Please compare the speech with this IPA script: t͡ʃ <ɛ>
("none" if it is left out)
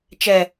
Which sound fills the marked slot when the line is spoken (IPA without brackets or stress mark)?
ɛ